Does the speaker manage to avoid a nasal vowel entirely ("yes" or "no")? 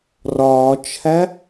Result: yes